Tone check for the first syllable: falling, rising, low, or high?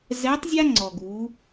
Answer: rising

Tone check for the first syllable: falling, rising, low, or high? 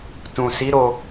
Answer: low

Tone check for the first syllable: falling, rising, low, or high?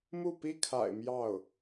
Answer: falling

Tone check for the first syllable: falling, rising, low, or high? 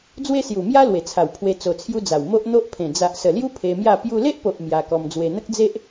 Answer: high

